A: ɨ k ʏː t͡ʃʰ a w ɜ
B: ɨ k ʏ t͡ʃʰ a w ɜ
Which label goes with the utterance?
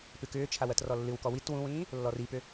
A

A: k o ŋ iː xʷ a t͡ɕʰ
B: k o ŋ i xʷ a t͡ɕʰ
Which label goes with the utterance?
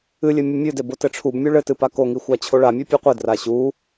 B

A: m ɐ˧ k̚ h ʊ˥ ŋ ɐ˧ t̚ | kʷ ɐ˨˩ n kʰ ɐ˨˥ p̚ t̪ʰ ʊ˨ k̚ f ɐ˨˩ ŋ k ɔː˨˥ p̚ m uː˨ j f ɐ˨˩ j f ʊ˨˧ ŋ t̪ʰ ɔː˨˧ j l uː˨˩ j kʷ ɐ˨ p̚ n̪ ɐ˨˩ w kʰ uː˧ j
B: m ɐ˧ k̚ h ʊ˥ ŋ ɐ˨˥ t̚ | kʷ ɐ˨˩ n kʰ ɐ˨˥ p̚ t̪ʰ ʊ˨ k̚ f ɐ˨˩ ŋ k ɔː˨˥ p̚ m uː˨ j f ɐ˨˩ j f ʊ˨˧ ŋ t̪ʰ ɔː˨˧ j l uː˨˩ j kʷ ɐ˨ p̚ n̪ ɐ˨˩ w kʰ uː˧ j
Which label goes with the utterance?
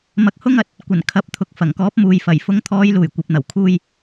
B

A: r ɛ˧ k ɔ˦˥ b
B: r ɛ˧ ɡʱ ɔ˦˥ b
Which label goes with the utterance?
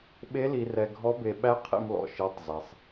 B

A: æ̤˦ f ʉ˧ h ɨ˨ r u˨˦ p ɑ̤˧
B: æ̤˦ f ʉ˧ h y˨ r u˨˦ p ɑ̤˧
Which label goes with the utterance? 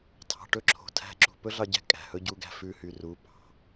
B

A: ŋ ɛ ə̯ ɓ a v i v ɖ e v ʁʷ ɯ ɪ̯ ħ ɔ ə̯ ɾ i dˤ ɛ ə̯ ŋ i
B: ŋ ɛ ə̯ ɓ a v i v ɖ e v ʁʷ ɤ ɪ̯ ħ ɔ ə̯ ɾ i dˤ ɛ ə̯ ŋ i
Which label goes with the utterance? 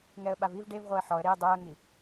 B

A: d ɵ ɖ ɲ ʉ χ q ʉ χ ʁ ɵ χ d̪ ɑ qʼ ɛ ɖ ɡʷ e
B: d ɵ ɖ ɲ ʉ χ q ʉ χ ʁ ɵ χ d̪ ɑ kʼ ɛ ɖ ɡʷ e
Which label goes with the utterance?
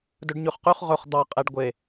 A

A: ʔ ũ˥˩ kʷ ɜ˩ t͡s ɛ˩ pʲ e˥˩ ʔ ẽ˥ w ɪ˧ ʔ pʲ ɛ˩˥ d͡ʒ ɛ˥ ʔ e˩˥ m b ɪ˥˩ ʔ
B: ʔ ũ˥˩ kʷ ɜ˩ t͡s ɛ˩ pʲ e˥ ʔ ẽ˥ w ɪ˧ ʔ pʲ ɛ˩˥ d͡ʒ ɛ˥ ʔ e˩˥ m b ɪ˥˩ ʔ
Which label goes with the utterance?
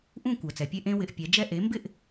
A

